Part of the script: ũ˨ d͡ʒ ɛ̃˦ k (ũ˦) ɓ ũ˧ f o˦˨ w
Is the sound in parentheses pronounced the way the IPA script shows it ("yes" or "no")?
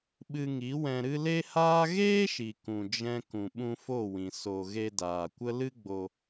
no